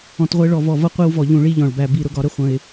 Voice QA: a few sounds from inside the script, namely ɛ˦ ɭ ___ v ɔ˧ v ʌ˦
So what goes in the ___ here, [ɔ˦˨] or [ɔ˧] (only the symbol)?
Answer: ɔ˧